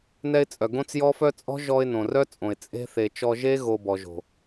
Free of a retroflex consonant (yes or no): yes